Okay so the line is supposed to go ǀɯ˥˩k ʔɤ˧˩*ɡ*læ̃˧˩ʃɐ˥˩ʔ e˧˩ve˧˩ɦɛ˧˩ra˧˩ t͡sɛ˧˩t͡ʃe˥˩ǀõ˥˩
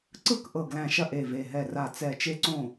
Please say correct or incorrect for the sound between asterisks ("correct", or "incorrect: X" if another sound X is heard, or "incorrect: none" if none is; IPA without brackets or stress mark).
correct